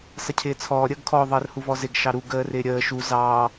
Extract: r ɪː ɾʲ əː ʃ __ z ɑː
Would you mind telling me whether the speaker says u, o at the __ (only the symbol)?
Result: u